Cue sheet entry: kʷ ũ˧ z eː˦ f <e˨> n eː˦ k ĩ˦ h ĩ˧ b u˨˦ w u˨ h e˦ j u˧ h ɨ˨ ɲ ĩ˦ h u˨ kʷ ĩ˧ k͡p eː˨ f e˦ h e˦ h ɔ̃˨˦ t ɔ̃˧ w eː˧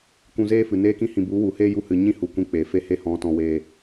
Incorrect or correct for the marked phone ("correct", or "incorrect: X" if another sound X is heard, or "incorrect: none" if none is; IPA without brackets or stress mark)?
incorrect: ɨ˨